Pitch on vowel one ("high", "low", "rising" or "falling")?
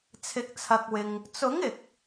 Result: rising